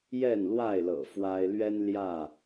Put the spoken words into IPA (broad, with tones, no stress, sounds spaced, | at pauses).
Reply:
j ɛ˥˨ n l w a˥˨ ɪ̯ l ɤ̰˨˩ f w a˦ ɪ̯ l ɥ ɛ˦ n l j ä˥˨